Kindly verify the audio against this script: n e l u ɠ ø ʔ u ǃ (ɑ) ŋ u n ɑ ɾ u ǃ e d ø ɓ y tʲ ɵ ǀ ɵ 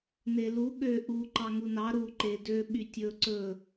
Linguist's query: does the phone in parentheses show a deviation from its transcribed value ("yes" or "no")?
no